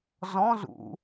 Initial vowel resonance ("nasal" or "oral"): nasal